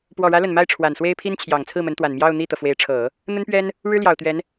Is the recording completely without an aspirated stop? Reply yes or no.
no